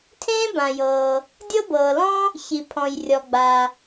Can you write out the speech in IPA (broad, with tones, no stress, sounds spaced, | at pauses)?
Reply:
tʰ ẽː˥ b ã˩ j ɤː˩ | dʲ ɤ˥ b ɤː˩ l ɔ̃˥ | ç i˩ pʰ ɔ̃˩ j rʲ ɔ˩ ɡ͡b a˩